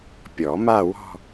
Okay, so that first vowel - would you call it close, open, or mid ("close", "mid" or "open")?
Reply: mid